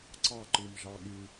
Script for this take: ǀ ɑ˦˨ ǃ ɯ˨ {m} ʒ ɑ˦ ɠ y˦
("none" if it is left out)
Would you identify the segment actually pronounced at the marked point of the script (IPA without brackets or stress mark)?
m